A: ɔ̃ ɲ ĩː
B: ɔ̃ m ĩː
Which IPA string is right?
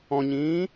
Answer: A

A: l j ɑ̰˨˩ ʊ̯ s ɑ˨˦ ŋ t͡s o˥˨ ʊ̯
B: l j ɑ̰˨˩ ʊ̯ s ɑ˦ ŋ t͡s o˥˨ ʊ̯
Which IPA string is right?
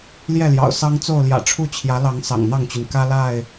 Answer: B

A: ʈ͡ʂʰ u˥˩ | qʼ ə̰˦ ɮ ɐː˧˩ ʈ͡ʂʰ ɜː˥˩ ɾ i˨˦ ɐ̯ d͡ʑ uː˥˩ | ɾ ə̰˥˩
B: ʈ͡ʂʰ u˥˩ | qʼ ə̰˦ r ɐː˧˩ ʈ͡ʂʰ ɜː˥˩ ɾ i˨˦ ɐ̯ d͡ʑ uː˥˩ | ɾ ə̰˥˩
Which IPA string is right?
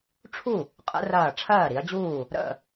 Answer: B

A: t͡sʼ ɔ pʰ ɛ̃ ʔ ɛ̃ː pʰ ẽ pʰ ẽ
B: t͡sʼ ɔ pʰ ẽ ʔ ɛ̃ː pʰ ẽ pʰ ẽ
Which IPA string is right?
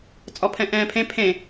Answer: A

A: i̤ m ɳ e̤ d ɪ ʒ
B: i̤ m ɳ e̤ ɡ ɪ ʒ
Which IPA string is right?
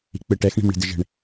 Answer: A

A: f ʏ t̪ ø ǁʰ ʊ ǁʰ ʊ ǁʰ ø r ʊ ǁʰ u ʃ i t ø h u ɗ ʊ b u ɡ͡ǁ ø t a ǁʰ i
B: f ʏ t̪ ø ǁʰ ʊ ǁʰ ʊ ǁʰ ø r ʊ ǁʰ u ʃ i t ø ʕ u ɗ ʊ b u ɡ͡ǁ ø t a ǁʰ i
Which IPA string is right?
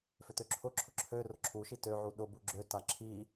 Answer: B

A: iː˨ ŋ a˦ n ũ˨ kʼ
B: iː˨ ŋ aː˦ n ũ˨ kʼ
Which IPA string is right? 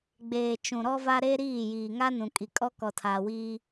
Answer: A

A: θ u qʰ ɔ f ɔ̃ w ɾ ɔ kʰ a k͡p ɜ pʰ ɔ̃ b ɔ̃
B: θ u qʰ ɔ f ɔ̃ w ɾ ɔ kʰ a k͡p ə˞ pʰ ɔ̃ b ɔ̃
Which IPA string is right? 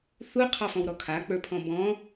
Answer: B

